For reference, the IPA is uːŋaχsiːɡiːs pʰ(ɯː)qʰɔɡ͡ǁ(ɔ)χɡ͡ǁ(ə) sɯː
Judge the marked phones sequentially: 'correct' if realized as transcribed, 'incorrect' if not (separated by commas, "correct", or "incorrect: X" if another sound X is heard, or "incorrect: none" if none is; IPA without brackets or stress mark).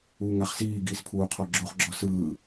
incorrect: uː, incorrect: o, incorrect: ɔ